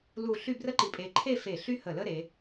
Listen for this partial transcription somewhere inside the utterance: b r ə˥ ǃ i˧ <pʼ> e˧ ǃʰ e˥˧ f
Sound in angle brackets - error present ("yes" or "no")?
no